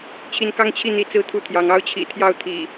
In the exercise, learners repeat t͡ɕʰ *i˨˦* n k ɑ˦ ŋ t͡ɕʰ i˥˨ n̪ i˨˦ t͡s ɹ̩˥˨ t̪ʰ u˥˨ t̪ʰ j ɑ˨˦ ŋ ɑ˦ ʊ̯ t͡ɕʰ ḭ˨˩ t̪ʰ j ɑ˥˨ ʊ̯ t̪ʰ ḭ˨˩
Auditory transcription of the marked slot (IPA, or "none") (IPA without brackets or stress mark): i˨˦